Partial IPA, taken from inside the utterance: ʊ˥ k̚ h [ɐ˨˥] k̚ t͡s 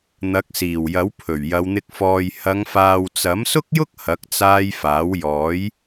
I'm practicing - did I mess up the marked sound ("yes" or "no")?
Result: no